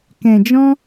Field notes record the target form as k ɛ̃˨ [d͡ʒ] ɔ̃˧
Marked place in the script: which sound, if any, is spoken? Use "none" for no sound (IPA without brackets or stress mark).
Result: d͡ʒ